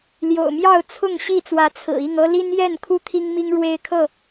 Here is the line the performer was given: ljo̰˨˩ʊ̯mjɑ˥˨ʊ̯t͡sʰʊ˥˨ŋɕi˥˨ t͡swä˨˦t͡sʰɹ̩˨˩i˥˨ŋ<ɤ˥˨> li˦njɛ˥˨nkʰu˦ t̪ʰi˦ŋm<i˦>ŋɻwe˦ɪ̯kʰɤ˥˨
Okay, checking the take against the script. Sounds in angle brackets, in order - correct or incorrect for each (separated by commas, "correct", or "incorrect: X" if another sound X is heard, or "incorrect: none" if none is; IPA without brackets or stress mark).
incorrect: ɤ˦, correct